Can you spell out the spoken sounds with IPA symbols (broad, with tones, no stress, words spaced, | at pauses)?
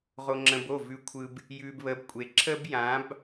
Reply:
ʁo˨ŋ͡ǁə̃˨b o˦˨ vʉ˨kʷʰɯ˨b | jʉː˨b βə˨˦bkʷʼe˨ ǁə˦b jã˨˦b